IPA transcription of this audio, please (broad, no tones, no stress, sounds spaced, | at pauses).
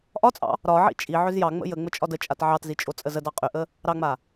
ʔ ɒ t͡sʼ ɑ̰ | ɾ ɒ ʕ ḭ t͡ʃʼ i ʕ ʏ z j ɑ ŋ͡m ə̰ j ə ŋ͡m ə t͡ʃʼ ɒ d ə t͡ʃʼ a t ʕ ɑ t z i t͡ʃʼ o t͡sʼ ə z ə d ɑ qʼ ʏ ʔ ə | ɾ ɑ ŋ͡m a